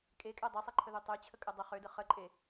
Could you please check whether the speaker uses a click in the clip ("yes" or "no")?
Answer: yes